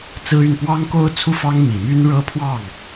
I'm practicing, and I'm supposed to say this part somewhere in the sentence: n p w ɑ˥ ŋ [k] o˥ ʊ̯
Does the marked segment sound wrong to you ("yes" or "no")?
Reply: no